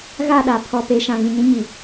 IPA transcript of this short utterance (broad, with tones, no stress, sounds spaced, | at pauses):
ɣ a˦˨ ɗ a˨ pʰ ɔ˨ p e˨ ʃ ã˨ ɣ ĩ˨ ɲ ĩ˦ ɲ i˨